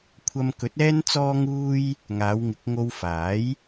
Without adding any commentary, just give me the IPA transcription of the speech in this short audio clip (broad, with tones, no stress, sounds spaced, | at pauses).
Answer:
kʷʰ ɐ˧ m k ɵ˨˥ t̚ ɛː˥ n t͡s ɔː˥ ŋ uː˥ j | ŋ aː˨˧ w ŋ ɪ˨˥ k̚ ŋ o˧ w f aː˨˥ j